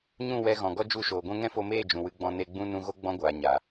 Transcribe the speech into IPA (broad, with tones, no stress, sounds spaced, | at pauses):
ɲ ũ˦˨ w ɛ˧ ɣ ɔ̃˨ ɡ ɔ˦ d͡ʒ u˦˨ ʃ oː˨ ɡʷ ɛ̃˧ ŋ ɛ̃˦ f o˧ m eː˦˨ d͡ʒ ũ˨ w ɨ˧ ɡ͡b ɔ̃˧ n e˧ ɡ͡b ũ˦ n ũ˧ ɣ o˦ ɡ͡b ɔ̃˦ ɡʷ aː˨ ɲ a˨